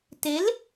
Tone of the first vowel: rising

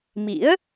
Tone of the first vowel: rising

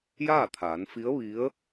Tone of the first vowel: falling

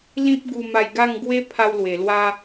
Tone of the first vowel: high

